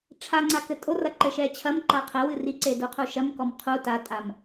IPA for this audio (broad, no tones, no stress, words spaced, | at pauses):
ʈ͡ʂʰaŋ͡ǀa kɘtʼorɐ ǃɘʃɛt͡ɕʰɐmǃa qʰɛ wɨriǀe duqʰuʃɐmkɔm qʰu tatʼam